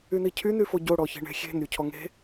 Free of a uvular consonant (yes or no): yes